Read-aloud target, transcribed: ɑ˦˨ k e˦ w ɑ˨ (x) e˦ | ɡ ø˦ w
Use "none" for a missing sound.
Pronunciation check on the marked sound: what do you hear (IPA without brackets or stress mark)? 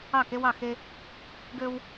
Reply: x